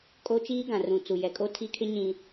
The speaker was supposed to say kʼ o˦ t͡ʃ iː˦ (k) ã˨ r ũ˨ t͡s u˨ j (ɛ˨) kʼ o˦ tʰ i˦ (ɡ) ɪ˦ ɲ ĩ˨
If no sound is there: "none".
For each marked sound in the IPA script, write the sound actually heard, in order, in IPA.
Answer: ɡ, ɛ˨, kʰ

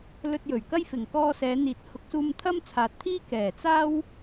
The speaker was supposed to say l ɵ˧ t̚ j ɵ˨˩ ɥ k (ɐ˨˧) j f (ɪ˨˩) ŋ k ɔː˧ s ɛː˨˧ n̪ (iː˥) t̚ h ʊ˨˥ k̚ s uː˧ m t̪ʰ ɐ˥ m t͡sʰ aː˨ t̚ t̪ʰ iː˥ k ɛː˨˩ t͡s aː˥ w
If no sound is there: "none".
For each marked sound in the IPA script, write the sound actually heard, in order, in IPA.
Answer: ɐ˥, ɪ˨˩, iː˨˥

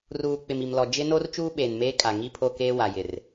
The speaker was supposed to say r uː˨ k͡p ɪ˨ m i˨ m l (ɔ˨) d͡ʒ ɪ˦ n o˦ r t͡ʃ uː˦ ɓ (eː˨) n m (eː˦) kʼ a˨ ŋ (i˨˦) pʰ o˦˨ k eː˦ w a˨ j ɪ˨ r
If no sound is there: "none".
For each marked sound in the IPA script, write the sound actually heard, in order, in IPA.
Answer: ɔ˨, eː˨, eː˦, i˦˨

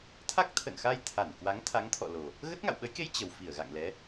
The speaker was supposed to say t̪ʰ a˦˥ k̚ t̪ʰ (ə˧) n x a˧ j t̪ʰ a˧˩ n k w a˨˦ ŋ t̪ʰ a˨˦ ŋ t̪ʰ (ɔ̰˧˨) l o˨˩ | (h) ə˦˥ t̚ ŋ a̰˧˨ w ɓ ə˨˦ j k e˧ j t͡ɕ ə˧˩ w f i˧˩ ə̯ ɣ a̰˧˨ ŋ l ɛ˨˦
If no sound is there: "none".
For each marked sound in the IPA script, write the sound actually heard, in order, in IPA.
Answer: ə̰˧˨, ɔ̰˧˨, ɣ

